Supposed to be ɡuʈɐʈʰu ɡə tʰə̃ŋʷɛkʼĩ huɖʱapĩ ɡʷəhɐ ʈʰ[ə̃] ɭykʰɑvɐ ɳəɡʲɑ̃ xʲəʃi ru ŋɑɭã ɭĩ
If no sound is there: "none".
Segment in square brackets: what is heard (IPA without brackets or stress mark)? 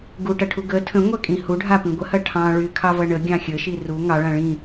ɑ̃